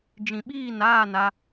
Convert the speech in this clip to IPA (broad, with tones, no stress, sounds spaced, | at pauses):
d͡ʒ ĩ˨ ɓ iː˦˨ n aː˦˨ n a˦